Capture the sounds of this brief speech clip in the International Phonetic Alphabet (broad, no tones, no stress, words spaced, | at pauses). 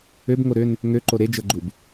øb ŋoɾøn | ŋøǃo ɾed͡ʒɤɡ͡ǃub